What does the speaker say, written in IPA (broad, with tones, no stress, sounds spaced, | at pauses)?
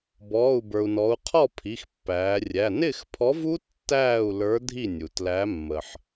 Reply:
b ɔː˩˧˩ u̯ b ə˞˩ u̯ n ɔ˩˧ u̯ qʰ ɔ˥˩ pʰ i˩˧˩ x pː æː˩˧ rʲ æ˩˧˩ n ɪː˥˩ x pʰ ɔ˨˥ v u˦˥ tː æː˥˩ u̯ l ə˞˨˥ dʱ i˥˩ nʲ u˩ t l æ˨˥ mː ə˩ ħ